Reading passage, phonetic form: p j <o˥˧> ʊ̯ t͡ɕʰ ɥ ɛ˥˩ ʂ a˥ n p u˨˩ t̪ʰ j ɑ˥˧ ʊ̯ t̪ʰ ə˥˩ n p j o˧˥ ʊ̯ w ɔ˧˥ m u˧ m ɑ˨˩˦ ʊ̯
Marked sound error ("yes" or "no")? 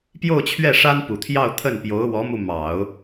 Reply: no